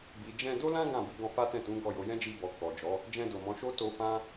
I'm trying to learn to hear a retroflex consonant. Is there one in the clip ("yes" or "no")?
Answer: no